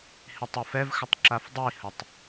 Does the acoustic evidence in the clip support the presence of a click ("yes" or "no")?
yes